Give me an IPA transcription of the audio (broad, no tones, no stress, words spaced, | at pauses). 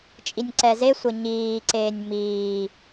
t͡ʃʼinʲǀɛzesʷʌ ɲiːǀeːnʲ miː